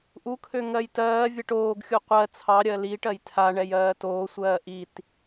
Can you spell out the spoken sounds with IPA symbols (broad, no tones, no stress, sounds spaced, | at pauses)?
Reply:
ʔ u kʰ ø ŋ ɜ j t ɜː vʲ ɛ ʈ oː ɡ xʲ u qʷ ɜ t͡sʰ ɑ ɾʲ ɜ l iː ʈ ɜ j tʰ a ɳ ɛ j ɜː t oː sʷ ɜː ʔ i t